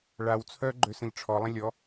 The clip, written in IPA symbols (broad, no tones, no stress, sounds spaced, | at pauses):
ɭ a w t͡sʰ œ ɡ͡ǃ ø s ə̃ ʎ ʈ͡ʂʰ ɔ lˠ ə̃ lʲ ɔ